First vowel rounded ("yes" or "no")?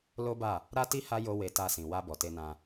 yes